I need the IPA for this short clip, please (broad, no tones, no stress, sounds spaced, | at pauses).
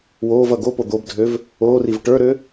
w oː v ʌ ɡ o p o d̪ o b dʱ ø v | oː r i v ʈ ə˞ ɾ ø